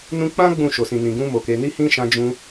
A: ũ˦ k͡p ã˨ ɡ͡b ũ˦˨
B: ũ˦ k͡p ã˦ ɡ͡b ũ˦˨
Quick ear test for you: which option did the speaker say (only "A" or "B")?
B